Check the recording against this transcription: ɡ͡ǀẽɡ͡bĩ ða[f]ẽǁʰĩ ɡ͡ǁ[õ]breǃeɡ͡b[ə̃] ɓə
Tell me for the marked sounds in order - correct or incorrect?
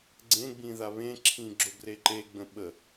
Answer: incorrect: β, incorrect: o, correct

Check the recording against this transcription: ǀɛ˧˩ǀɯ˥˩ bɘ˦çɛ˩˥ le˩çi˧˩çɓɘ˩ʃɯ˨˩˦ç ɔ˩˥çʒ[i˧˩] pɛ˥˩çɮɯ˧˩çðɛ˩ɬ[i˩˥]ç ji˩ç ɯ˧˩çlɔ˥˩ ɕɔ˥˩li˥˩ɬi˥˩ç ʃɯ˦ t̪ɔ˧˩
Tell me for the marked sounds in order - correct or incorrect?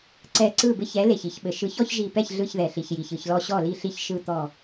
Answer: correct, incorrect: i˩

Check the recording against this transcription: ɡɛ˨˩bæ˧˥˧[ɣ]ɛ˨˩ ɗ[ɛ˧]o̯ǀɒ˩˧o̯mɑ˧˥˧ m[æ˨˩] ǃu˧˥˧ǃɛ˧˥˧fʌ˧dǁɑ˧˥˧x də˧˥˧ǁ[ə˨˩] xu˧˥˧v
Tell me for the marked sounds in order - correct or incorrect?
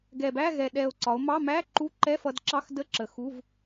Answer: correct, incorrect: ɛ˨˩, incorrect: æ˧˥˧, correct

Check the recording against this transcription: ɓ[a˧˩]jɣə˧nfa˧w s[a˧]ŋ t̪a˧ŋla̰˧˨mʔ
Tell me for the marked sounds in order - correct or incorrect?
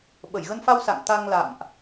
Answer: incorrect: ə˧˩, incorrect: a̰˧˨

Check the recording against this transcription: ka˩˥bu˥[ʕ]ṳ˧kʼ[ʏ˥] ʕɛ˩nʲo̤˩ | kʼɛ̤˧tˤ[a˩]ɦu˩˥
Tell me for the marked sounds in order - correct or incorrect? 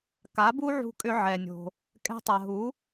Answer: correct, incorrect: ʏ˧, correct

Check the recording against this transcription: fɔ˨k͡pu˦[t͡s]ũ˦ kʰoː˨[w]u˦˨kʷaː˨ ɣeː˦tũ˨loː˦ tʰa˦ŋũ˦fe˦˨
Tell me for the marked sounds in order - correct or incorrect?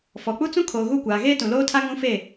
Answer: correct, incorrect: ɣ

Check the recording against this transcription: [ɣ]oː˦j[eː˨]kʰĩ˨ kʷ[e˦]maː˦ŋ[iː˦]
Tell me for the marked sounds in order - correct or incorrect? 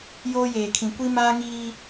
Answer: incorrect: j, correct, incorrect: i˦, correct

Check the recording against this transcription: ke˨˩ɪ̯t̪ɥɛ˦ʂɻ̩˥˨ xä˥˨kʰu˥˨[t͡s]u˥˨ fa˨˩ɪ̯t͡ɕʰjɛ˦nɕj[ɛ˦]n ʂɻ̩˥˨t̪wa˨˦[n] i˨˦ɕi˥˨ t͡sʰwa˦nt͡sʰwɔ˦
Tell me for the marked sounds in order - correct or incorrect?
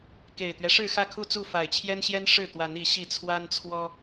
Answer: correct, correct, correct

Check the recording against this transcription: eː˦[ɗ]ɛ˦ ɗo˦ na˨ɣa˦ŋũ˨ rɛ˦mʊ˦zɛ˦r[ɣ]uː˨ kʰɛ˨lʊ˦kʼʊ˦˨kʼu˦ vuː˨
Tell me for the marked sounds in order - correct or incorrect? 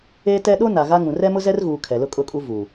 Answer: incorrect: t, correct

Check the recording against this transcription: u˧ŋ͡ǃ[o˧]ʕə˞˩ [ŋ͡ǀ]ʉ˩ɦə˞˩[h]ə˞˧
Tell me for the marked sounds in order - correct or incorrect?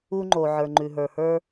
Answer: incorrect: o˩, incorrect: ŋ͡ǃ, correct

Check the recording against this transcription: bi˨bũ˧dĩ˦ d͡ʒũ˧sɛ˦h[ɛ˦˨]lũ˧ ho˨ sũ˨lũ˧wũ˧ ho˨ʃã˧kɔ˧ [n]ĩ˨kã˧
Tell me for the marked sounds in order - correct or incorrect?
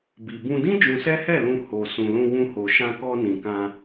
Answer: correct, correct

